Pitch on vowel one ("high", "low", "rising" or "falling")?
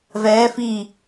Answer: rising